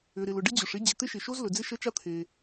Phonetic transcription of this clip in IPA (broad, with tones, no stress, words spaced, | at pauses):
ʏ˩ɾɪ˩lʊ˩ ɖɪ˥d͡ʑʊ˩ʂ ɪ˥ d͡ʑɪ˩t̪ɪ˥ʃɪ˩ʃo˥z lɵ˩d͡zɪ˥ʃə˥t͡ʃa˥ t̪ʰe˩